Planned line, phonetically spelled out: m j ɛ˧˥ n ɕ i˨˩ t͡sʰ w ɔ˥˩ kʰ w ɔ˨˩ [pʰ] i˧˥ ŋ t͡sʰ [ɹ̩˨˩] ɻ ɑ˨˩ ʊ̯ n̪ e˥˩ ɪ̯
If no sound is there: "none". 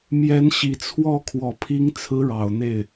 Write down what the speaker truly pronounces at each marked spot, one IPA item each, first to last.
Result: pʰ, ɹ̩˧˥

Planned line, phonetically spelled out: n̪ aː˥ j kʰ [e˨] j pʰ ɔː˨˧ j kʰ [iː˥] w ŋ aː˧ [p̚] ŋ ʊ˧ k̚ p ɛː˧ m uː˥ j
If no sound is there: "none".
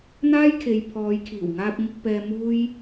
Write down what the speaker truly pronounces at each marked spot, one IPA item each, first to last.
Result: e˨, iː˨˩, p̚

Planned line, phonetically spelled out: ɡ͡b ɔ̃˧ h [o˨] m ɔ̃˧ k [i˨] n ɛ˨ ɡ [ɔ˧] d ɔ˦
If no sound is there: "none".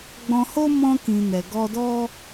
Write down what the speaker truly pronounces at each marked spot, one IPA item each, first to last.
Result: o˦, ĩ˨, ɔ˧

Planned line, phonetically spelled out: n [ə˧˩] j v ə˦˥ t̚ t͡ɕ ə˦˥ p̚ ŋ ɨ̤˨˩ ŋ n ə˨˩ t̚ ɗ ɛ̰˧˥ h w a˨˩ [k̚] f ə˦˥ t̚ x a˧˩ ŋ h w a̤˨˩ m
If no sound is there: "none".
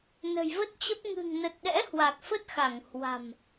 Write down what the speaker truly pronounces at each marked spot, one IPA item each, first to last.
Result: ə̤˨˩, k̚

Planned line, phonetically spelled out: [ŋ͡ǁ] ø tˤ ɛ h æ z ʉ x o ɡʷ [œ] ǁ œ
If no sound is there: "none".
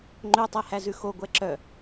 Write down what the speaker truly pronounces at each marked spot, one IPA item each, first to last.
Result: ŋ͡ǃ, ɛ

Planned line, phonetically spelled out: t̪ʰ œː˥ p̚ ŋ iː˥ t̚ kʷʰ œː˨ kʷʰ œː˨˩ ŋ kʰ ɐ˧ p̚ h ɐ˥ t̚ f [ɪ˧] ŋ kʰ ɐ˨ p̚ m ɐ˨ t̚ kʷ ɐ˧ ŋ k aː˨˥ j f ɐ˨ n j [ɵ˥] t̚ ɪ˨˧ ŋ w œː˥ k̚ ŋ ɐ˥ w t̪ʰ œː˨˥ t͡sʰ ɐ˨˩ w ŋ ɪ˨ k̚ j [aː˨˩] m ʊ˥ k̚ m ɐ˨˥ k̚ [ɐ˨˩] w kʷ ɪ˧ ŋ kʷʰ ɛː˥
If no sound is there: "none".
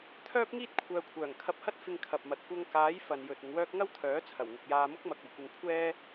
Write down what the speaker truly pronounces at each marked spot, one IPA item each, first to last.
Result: ɪ˧, ɵ˨, aː˧, ɐ˨˩

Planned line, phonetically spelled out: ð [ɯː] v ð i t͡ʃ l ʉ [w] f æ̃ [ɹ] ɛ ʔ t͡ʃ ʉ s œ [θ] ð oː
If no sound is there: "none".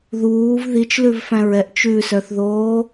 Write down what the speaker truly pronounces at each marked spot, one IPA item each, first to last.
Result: uː, v, ɹ, θ

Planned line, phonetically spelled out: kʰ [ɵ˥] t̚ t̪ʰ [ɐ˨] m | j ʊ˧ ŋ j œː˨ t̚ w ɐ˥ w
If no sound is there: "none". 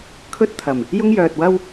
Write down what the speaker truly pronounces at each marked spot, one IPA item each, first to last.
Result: ɵ˥, ɐ˨˩

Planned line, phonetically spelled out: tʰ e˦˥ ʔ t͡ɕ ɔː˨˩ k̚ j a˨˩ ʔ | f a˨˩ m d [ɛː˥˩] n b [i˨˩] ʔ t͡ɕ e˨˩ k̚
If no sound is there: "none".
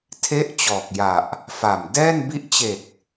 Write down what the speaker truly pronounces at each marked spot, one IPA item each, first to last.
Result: ɛː˥˩, i˦˥

